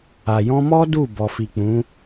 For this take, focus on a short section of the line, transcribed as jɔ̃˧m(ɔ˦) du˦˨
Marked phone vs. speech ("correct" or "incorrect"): correct